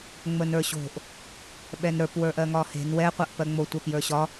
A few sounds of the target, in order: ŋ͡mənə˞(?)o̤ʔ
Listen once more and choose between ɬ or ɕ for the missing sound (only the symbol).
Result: ɕ